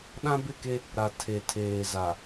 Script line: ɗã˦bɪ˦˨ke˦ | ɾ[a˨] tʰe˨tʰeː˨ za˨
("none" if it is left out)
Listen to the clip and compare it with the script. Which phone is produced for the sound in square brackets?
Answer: a˨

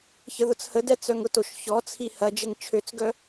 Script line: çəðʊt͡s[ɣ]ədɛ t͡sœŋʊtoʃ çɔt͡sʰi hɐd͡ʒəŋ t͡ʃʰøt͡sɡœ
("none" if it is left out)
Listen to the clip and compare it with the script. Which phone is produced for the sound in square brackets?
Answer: h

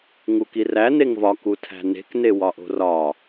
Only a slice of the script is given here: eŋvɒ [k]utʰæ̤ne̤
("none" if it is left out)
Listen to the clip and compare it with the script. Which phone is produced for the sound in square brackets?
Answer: k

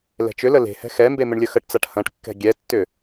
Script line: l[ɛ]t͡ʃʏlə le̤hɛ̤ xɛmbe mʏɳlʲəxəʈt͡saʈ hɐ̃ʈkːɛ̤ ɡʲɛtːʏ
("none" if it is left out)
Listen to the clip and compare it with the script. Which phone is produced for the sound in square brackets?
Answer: ɛ̤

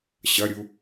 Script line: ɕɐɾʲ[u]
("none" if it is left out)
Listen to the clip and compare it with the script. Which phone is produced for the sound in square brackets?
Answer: u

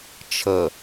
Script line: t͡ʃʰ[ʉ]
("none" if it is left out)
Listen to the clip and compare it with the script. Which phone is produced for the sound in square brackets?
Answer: ə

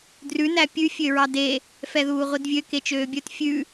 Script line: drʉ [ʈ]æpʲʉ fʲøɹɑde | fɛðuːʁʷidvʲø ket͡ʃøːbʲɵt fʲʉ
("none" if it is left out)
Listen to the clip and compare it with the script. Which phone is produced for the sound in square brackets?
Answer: n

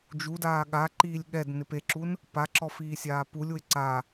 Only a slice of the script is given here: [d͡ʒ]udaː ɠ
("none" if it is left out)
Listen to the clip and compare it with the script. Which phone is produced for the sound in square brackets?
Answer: d͡ʒ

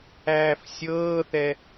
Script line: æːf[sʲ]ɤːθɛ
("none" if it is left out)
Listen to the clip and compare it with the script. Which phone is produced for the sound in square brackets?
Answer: sʲ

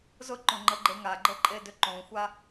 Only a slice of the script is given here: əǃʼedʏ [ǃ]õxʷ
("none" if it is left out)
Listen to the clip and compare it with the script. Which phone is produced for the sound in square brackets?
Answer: ǃ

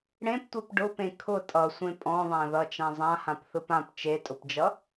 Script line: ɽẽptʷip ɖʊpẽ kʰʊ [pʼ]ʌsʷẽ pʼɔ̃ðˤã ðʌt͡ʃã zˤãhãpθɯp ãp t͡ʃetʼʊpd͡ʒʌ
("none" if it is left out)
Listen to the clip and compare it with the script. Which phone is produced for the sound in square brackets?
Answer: tʼ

